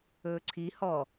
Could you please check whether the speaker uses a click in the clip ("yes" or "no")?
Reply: yes